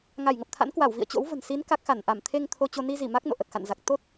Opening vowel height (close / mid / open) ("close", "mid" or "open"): open